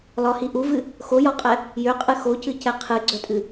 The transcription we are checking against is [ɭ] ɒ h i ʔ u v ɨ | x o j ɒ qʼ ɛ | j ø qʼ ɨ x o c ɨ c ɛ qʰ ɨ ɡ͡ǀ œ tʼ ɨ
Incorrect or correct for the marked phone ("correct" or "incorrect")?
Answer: incorrect